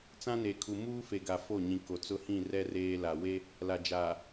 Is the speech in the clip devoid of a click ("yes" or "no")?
yes